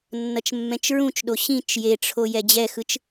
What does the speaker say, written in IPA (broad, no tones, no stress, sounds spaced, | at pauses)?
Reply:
nː ʌ t͡ʃ mː ɛ̃ t͡ʃ ɹ ũ t͡ʃ ɗ o ɕ ĩ t͡ʃ j e ʈ͡ʂʰ o j ɛ d͡ʑ ɛ x ɯ t͡ʃ